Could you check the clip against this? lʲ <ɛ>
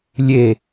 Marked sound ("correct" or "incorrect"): incorrect